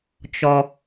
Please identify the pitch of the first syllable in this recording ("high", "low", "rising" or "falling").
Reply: low